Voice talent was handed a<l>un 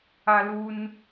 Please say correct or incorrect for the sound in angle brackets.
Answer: correct